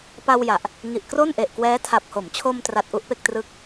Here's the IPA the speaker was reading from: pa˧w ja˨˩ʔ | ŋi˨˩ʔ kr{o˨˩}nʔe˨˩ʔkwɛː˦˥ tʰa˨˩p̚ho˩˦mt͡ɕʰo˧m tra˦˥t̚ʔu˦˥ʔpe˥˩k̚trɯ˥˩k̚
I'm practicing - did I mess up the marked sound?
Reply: yes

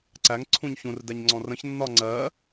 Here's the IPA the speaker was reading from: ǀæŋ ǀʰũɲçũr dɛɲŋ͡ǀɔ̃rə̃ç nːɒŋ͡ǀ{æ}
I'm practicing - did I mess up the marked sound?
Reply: yes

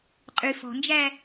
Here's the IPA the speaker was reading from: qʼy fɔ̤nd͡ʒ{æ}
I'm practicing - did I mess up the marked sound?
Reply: no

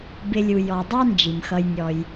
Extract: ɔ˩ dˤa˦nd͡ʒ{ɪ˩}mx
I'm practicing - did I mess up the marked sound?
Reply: yes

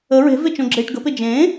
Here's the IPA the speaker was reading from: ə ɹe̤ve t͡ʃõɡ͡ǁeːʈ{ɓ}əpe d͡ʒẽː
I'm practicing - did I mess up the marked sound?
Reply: yes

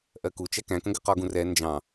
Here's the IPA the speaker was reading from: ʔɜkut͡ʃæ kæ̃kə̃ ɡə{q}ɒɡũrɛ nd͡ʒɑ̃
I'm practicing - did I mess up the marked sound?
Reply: no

